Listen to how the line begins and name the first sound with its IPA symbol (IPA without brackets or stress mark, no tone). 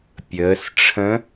pʲ